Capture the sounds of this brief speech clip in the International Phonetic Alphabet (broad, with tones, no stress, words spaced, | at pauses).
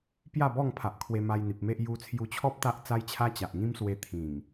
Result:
pja˥˧bɔ˥˧ŋpʰa˨ʔkʰwe˧ ma˧jn̪i˨p̚me˦ʔ ju˧t͡sʰju˧t͡ɕʰɔ˦p̚ t̪a˦ʔt͡sa˦jt͡ɕʰa˦ t͡ɕa˨ʔŋĩ˦mswe˧ t̪ʰĩ˨˩ŋ